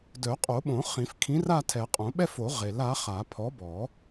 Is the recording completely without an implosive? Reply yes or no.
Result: no